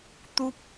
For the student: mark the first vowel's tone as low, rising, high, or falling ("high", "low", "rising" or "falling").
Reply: high